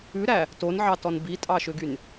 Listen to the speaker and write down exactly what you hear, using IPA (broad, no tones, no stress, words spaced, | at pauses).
ʉɾæ | tonʕɑtɔn bitʼɑʃøɡyn